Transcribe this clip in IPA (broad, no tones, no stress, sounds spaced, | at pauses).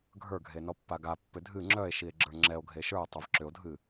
ɡʱ ə˞ ɡʱ e n ɔ pː a ɡ a pː ʏ dʱ ɨ ŋ͡ǁ œ e̯ ʃ i e̯ ɡ͡ǁ ə˞ ŋ͡ǁ ɛ o̯ ɡʱ e ʃ ə˞ o̯ tˤ e v ǁ ʏ o̯ dʱ ɨ